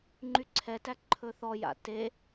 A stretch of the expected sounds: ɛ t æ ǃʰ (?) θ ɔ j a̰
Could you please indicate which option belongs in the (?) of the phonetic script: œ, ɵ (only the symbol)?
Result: ɵ